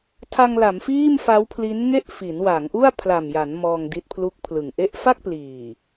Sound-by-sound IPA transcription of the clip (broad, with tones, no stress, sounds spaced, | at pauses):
tʰ a˧ ŋ l a˩˦ m f iː˥˩ m f a˦˥ w pʰ l i˦˥ n ŋ e˥˩ ʔ f i˩˦ n w a˩˦ ŋ ʔ u˥˩ a̯ pʰ l a˨˩ m j a˩˦ n m ɔː˧ ŋ d i˦˥ t̚ pʰ l u˦˥ k̚ pʰ l ɯ˨˩ ŋ ʔ e˦˥ ʔ f a˥˩ k̚ p l iː˨˩